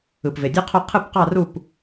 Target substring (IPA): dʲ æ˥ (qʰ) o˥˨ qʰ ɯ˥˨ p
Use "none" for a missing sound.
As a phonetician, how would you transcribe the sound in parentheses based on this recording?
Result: qʰ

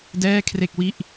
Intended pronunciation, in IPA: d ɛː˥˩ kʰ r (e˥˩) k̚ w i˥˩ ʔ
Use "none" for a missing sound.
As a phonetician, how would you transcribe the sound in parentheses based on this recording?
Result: e˥˩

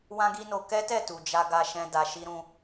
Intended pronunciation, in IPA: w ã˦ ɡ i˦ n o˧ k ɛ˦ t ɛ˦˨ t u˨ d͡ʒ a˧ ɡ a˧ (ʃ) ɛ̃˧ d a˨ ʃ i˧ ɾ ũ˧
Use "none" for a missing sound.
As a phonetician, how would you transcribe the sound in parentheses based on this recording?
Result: ʃ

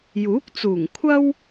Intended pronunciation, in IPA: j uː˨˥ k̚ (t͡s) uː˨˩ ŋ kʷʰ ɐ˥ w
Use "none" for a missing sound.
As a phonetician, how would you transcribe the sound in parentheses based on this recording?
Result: t͡s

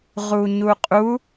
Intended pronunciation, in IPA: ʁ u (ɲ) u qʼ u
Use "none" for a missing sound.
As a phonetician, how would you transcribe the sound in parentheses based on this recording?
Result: ɲ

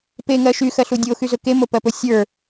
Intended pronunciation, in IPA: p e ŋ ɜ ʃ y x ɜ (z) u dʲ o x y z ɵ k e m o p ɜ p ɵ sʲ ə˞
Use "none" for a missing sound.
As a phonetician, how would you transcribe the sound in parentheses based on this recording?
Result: ɬ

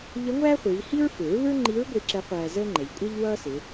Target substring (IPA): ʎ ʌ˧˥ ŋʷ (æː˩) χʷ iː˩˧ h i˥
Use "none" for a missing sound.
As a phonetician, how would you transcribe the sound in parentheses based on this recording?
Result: æː˥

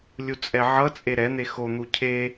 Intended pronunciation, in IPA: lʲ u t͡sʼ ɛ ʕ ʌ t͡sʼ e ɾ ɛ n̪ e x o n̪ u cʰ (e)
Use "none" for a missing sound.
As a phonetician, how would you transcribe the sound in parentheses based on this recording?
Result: e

